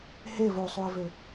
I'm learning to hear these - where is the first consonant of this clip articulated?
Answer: throat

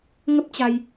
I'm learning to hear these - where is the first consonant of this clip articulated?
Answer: velum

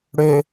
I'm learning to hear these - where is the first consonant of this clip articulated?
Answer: retroflex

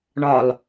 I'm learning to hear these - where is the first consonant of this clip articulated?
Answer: retroflex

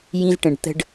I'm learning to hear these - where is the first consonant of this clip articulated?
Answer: palate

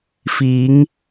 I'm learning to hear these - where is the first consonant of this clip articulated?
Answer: lips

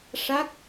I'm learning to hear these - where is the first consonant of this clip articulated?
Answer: retroflex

